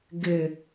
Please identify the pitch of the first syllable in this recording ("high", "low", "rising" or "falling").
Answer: low